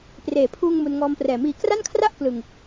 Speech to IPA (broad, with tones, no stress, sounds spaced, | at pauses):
p r eː˩˦ pʰ uː˧ ŋ m u˧ n ŋ ɔː˧ m p r ɛː˨˩ m iː˨˩ k r a˥˩ n kʰ r a˥˩ ʔ k l ɯ˨˩ ŋ